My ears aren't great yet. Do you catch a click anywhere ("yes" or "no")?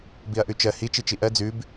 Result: no